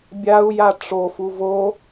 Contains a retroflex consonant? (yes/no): yes